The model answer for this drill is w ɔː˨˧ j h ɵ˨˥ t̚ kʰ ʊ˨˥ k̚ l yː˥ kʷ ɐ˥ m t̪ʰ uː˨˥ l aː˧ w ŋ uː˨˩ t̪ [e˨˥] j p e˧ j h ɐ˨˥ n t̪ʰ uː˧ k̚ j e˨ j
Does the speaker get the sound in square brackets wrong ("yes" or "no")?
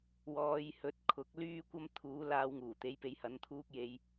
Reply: no